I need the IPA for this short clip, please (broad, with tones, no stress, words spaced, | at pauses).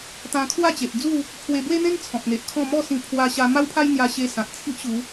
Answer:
t̪ã˧kʰwa˥˧t͡ɕe˨ʔd͡zu˥˧ | pʰwe˧bwe˦n̪ẽ˦ŋ t͡sʰɔ̃˨k̚n̪e˨ʔkʰɔ̃˥˧ mɔ˥˧sĩ˧ pʰwa˧ ɕa˧ma˦wpʰa˦j n̪ja˧ɕe˧sã˨t̚ t͡sʰi˦ʔɕu˨˦